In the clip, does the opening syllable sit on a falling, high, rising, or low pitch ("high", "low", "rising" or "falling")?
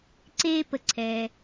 high